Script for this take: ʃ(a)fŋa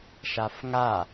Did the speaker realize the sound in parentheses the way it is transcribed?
yes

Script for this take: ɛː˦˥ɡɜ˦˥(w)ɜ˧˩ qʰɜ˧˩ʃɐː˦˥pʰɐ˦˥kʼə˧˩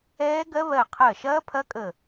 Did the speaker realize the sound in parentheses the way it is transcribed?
no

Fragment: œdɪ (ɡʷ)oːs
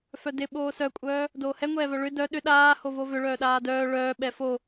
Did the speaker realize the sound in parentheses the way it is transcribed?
no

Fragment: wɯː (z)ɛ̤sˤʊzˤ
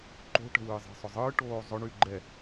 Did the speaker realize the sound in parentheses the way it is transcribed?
no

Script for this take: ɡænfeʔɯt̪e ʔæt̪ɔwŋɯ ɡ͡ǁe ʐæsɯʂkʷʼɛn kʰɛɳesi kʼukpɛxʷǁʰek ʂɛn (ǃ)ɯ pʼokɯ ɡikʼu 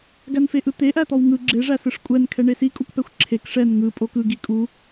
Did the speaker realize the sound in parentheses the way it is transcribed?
no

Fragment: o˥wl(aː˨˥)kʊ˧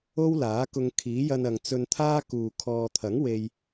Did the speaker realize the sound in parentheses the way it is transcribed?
yes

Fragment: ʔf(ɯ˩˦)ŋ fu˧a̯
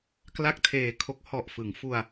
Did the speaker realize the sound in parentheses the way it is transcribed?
yes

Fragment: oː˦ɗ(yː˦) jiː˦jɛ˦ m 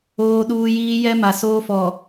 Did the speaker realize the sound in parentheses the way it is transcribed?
no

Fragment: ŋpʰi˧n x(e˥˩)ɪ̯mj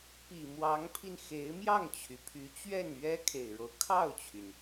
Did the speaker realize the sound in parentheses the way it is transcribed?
no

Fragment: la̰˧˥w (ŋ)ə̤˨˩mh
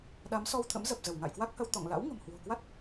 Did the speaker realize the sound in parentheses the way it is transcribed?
yes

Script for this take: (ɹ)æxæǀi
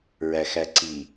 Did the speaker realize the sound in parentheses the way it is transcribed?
yes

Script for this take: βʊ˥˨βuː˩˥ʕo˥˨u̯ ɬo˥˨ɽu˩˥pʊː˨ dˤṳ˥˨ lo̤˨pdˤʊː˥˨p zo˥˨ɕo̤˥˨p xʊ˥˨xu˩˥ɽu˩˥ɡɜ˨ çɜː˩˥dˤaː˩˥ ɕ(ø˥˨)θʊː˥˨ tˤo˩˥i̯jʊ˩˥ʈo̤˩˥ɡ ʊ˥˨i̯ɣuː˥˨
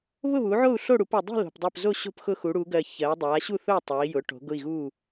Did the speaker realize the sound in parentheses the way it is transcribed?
no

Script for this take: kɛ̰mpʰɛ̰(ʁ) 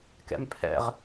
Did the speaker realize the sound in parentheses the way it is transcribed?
yes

